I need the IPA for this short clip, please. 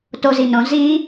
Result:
t o z i n õ z i

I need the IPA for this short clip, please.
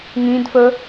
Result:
ŋ ĩ d f ə

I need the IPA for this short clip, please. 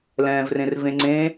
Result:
l ɛ̃ː v r ẽ r v ẽ ŋ͡ǀ ẽ

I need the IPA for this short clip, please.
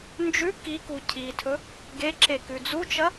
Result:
n d͡ʒ ʉ k i k u cʰ i tʰ ɵ | ɡ e ǁ e k ʉ d͡z u t͡ʃ ɐ

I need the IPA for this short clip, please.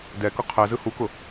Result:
d ɛ k ʊ qʰ ɛ z ɯ h u k ʊ

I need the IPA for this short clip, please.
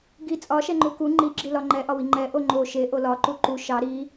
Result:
ɡ i t͡sʼ ɒ ʃ ɛ ŋ͡ǃ u k u ŋ͡ǃ i ɡ͡ǁ i l ɒ ŋ͡ǃ ɛ ʔ ɒ w i ŋ͡ǃ ɛ ʔ o ŋ͡ǃ o ʃ e ʔ o l ɒ ǃ u ǃ u ʃ ɑ ɾ i

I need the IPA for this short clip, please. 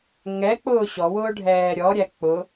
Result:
ŋ ɛ k͡p ʊː ɕ ɔ w ʊː ɖʱ ɛː ɾʲ ɔ ɾʲ æ k͡p ʊ

